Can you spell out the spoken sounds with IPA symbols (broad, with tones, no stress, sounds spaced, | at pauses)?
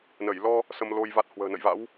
n ə˧˩ j l ɔ˧ | s ə˧ m l o˧ j v a˦˥ t̚ h w ə̤ː˨˩ n ə̰˧˨ j v a̰˧˥ w